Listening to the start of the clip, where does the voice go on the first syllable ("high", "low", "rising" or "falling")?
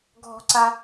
high